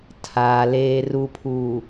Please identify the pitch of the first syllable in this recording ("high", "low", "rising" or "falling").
low